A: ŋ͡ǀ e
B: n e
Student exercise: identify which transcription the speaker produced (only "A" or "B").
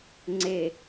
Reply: A